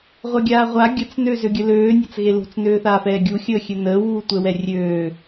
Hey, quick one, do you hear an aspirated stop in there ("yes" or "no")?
no